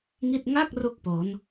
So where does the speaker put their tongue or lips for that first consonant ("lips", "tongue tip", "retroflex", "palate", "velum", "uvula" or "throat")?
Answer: velum